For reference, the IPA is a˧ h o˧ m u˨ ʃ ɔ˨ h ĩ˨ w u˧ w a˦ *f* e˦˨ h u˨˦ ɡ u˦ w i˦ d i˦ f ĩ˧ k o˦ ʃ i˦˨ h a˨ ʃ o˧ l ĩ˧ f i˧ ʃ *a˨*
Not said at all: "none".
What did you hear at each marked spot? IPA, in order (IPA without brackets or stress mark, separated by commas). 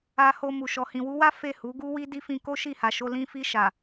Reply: f, a˨